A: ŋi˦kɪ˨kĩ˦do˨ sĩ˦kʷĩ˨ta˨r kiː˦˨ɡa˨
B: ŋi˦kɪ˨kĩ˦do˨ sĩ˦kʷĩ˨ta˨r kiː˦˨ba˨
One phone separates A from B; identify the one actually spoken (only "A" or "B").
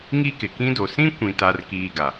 A